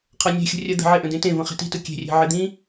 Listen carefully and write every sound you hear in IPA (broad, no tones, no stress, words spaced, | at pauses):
qʰɜnʲe̤xʲə̤ rʲɜd̪ə̤ʕeʔə̃ dẽtẽvə̃ χe̤ti̤tɯ kʲe̤rʲe̤ ʕɪd̪ĩ